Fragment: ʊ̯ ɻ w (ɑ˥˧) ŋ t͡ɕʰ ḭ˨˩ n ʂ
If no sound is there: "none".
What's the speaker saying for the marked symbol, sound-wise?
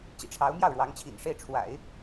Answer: ɑ˧˥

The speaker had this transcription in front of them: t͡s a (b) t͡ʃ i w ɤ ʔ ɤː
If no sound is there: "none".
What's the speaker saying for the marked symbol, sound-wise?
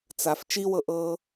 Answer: f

